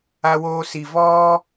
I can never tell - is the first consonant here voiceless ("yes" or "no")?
no